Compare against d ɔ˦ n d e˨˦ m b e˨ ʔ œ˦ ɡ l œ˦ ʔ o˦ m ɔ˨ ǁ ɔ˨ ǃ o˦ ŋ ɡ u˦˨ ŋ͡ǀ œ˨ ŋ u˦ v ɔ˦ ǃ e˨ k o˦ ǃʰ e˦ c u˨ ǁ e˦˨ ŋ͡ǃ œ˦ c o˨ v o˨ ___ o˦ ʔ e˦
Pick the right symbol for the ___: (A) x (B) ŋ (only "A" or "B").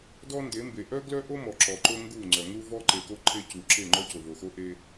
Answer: A